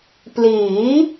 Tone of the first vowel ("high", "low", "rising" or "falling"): rising